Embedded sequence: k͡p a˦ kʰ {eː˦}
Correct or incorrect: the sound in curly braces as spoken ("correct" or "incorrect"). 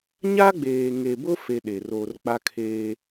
correct